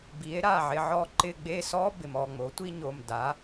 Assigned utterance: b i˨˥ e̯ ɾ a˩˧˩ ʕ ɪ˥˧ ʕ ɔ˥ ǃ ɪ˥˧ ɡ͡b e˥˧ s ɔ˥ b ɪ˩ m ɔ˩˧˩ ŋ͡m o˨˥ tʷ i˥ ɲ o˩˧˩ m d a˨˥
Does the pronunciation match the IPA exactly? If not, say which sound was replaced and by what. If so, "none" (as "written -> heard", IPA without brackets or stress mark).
none